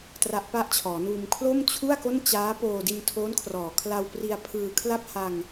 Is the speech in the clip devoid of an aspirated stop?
no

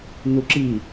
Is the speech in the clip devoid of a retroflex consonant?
yes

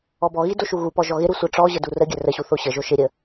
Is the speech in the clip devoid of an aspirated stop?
yes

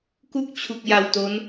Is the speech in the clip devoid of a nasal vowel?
yes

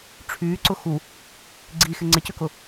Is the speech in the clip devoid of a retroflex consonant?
no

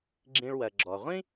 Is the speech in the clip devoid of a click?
no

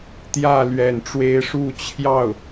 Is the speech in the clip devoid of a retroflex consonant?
no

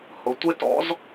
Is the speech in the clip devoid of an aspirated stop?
yes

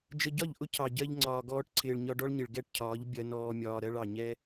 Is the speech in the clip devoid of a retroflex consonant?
no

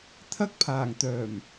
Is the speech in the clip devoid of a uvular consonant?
yes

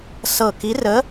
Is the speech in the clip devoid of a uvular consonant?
yes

